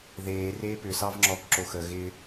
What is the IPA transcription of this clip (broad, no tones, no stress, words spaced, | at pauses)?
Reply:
ðeː reːpʏ sɑvŋ͡ǁɔːkǁoxə ɣɪ